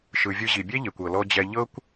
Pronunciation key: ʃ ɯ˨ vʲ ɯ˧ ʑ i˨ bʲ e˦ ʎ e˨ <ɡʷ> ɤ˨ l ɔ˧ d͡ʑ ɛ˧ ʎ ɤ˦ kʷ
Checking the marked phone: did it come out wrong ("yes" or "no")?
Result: yes